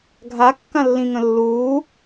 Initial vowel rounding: unrounded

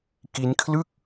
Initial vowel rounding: unrounded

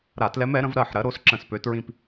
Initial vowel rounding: unrounded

